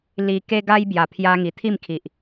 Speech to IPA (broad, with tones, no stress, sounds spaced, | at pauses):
l i˧ k e˦ ɡ a˦ j b j a˨˩ pʰ j a˧ ŋ i˨˩ t̪ʰ i˥˧ m kʰ i˨ ʔ